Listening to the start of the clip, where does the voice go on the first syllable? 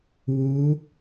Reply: rising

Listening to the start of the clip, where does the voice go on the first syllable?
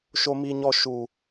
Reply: high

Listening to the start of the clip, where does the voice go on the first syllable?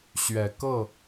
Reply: rising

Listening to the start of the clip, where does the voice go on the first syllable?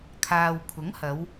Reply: low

